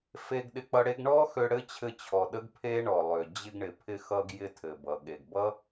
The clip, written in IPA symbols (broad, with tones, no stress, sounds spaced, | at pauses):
f e˧ ɡ ɗ ɪ˧ k͡p ʌ˧ ɽ e˥ ɡ ɳ ɔ˥ x ø˧ ɽ ɘ˥ t͡ɕʰ ɘ˧ t͡ɕʰ ɔ˩ ɗ ə˥ ɡ pʰ e˥ ɳ ɔ˩ lˠ ø˩ d͡ʑ ɪ˧ ɡ ɳ ɪ˩ pʰ ɪ˧ x ʌ˧ ɡ j ɪ˧ tʰ ɘ˩ b ʌ˩ ɠ e˩ ɡ b ʌ˥